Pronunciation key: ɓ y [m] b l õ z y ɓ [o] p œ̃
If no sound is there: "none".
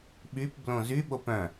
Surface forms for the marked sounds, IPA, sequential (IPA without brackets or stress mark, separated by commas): p, o